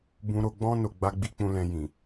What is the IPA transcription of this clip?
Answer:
bũ˧ɾo˧ɡ͡bɔ̃˦ no˧ɡ͡ba˦ɡ͡bi˦ k͡pũ˧lɛ̃˧jĩ˨

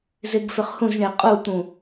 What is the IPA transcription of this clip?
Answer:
zeɡfʏχhũzɳe qʼut̪ũ

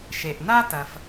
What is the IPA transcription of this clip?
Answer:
ʃe˩ʔna˥tɐ˩f

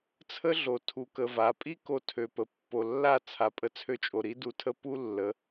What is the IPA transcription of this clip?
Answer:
t͡sʰə˦ɮo˨ tʰu˨kə˨va˨pʼi˦ ko˧tʰø˨pə˨pːo˨ lːa˦˨t͡sʰa˨ pʼə˧t͡sʰø˧t͡ʃʼo˨ɾi˦ du˧tʰə˦ pu˦lːə˨˦

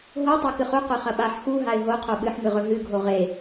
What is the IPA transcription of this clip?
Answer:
ɦo tˤakɨχu qʉχɐɓaħ xu ɦaɪ̯ɦo qʰoɓɨħmɨʁɵ ɦɨɡʱo ʁe

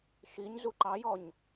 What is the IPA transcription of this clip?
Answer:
ʃiɲzu ǃɑjɔɲ

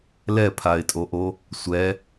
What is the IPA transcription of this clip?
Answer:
lɛpʰaɪ̯tʼoʔo | sʷɛ

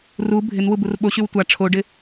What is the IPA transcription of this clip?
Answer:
ru bʱɪn wuburɓo ɕywtʷa ʈ͡ʂʰoɖɪ

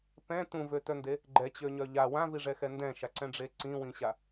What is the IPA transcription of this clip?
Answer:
pɛ̃ tũvøtœnde | ɡ͡ǃɛt͡ɕøɲœ ʎa wãviʐɛxɛ ndɛ̃ʃaǀɛ̃ɖ͡ʐe ǀĩwĩɕa

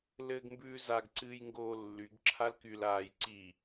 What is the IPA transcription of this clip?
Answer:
lɘːɡmbʉːzaɡ ǀɨːjŋɡoːlːyɡ ǁʰalkyl aːjǀi

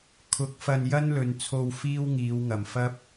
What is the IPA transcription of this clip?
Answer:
kʰʊ˨˥k̚fɐ˧n jɐ˥nlɵ˨nt͡sʰo˧w fiː˥wŋiː˨˧wŋɐ˨˩m fɐ˥p̚

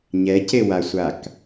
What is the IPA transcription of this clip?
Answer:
ɲɛcewasʷak

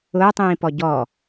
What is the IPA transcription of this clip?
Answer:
ʊːtˤĩːpɔ ɟɔ

